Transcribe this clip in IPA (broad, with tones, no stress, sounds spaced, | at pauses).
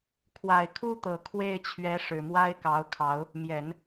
kʰ w a˨˩ ɪ̯ kʰ u˥ t̪ ɤ˨˩ kʰ w e˥˩ ɪ̯ t͡ɕʰ ɥ ɛ˧˥ ʂ ɻ̩˨˩ m w a˥ ɪ̯ k ɑ˧˥ ʊ̯ kʰ ɑ˧˥ ʊ̯ | m j ɛ˨˩˦ n